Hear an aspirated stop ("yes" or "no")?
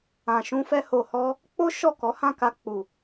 no